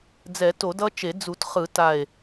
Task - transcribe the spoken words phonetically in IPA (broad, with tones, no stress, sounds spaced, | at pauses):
d͡z ɛ˨˩˦ t o˨˩˦ d ʌ˦ t͡ʃ e˨˩˦ d͡z u˨˩˦ t χ ɯ˨˩˦ t a˨˩ e̯